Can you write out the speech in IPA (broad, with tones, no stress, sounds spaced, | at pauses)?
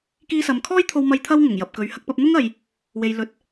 k iː˧ s ɐ˨ m kʰ ɔː˥ j t̪ʰ o˧ w m ɐ˧ j t̪ʰ ɐ˧ w ŋ ʊ˨˩ ŋ j ɐ˨ p̚ k ɵ˨˧ ɥ h ɐ˧ k̚ p ɐ˧ p̚ n̪ ʊ˥ ŋ ɐ˨ j | w e˨ j l ɵ˨˥ t̚